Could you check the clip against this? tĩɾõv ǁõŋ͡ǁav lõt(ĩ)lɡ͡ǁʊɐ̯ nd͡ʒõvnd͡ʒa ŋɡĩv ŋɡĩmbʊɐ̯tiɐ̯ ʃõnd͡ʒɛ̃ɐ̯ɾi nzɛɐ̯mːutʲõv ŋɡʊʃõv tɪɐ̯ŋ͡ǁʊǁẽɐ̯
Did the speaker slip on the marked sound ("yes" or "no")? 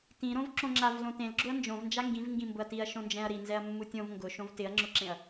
yes